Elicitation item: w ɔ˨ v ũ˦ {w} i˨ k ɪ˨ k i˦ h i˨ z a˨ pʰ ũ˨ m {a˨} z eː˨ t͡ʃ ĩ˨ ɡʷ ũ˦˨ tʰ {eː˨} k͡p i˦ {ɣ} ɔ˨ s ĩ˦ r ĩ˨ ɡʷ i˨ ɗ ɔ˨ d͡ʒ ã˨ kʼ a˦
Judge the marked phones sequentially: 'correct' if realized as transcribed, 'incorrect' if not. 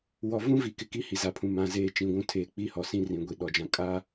incorrect: v, incorrect: ã˨, correct, incorrect: h

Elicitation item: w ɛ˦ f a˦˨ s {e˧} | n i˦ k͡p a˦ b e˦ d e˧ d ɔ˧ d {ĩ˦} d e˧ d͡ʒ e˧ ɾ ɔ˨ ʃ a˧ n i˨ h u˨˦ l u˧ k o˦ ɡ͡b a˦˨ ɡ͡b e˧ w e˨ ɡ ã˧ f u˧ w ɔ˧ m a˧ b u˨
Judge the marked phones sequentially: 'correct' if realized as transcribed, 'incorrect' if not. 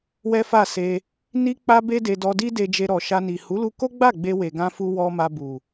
correct, incorrect: i˦

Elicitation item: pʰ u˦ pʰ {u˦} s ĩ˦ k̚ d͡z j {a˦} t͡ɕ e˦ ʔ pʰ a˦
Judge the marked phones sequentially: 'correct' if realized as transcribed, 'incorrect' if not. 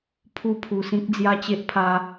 incorrect: u˧, correct

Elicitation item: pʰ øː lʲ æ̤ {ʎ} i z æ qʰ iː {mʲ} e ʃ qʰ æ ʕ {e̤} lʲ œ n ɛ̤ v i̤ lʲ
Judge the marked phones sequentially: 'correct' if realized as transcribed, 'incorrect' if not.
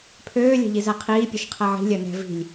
correct, incorrect: pʲ, incorrect: i̤

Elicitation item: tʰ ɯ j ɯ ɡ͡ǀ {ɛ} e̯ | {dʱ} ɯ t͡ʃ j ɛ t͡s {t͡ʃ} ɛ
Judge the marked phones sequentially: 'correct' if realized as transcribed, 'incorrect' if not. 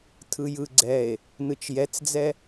correct, incorrect: n, incorrect: d͡z

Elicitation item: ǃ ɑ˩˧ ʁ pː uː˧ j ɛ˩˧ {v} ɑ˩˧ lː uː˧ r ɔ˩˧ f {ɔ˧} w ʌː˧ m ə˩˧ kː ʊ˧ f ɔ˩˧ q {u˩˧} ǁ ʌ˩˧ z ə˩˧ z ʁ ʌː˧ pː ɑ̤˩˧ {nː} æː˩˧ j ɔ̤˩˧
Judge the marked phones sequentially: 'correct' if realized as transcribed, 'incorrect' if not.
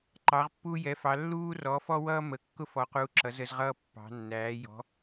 incorrect: f, correct, correct, correct

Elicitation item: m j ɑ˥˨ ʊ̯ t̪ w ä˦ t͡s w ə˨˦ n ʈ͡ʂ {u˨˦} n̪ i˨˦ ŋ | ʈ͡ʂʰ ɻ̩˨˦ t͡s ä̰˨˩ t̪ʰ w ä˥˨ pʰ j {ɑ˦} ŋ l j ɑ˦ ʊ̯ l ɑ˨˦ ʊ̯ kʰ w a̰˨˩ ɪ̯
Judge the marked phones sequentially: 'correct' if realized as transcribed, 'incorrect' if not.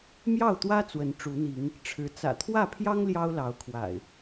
correct, correct

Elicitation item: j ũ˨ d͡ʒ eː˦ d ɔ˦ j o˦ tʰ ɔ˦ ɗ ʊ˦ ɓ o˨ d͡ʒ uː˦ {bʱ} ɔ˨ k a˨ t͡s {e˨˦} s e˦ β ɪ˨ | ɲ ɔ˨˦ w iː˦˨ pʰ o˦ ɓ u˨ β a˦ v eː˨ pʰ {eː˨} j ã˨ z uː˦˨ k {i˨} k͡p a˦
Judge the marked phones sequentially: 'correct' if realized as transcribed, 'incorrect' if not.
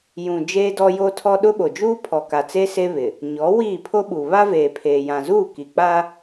incorrect: pʰ, incorrect: e˦, correct, correct

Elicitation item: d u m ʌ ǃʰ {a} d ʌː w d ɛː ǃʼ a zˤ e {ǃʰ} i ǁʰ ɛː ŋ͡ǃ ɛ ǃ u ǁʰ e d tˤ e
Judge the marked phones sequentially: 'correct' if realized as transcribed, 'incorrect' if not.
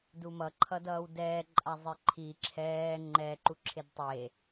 incorrect: ʌ, correct

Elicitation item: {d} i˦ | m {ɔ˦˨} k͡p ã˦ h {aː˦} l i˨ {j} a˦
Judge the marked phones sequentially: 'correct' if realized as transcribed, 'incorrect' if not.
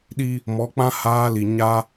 incorrect: ɗ, incorrect: ɔ˨˦, correct, incorrect: ɲ

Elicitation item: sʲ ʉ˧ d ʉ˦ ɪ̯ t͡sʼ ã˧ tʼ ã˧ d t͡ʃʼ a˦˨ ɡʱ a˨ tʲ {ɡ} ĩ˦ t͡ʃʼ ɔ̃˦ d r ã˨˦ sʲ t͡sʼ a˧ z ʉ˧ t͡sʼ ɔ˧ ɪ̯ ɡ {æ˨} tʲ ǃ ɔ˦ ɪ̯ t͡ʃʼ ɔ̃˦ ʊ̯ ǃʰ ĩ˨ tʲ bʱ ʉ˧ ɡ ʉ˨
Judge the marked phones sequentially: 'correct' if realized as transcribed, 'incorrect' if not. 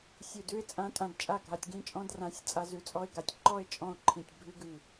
correct, incorrect: a˨

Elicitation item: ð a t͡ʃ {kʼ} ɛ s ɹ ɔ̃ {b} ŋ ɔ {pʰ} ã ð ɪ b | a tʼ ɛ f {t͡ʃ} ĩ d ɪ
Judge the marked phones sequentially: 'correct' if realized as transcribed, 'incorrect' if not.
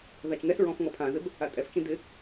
incorrect: ŋ, incorrect: f, correct, correct

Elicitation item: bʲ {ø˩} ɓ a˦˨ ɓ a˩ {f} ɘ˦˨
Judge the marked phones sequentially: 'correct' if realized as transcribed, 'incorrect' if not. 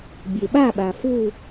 incorrect: e˩, correct

